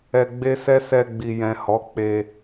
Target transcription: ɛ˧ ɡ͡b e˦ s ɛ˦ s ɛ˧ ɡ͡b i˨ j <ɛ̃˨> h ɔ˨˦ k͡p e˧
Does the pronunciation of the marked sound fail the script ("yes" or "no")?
no